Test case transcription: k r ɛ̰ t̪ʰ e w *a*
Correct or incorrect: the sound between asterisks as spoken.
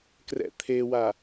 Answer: correct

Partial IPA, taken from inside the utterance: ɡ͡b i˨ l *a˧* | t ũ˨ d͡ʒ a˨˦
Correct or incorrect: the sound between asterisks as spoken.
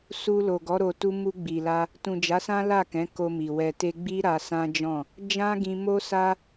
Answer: correct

